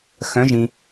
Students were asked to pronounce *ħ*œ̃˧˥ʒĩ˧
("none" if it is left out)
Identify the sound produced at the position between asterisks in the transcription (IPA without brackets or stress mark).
x